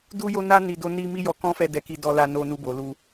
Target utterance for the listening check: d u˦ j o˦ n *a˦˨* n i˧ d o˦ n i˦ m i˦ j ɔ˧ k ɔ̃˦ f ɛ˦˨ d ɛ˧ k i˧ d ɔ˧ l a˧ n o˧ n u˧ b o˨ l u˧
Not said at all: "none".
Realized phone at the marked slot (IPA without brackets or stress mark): a˦